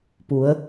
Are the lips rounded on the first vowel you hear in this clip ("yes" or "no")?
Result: yes